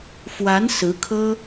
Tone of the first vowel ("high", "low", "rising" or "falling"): rising